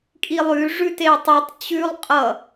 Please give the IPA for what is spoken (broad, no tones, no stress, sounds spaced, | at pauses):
kʼ i lˠ ʉ ʐ ʉ t e tˤ ʉ tˤ t͡ɕ ʉ lˠ qʼ ʌ